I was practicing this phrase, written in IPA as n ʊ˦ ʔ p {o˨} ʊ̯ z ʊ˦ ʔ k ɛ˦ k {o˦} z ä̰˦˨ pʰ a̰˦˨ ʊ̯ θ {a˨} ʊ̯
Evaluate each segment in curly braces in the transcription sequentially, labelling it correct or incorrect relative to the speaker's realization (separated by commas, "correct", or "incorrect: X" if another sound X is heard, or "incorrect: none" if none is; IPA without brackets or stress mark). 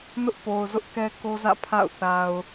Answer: correct, correct, correct